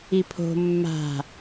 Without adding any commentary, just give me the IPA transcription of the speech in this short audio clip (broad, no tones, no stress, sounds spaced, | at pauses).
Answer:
i pʰ o̤ mː a̤